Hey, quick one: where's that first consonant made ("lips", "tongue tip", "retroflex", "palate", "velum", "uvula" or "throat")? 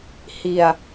throat